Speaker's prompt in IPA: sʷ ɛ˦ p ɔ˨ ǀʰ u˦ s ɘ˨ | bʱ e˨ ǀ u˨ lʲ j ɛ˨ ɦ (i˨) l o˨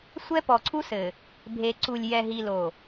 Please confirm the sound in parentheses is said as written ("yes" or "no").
yes